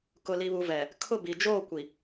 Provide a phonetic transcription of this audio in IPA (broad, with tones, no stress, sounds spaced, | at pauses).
k ʊ˨ l i˨ β u˨ v ɛ˨ | kʰ ʊ˦˨ b i˨ d͡ʒ oː˦˨ kʷ i˨